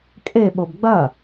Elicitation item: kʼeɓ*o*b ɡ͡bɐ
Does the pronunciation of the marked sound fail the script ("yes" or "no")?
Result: no